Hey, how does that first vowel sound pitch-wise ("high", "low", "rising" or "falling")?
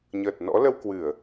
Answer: low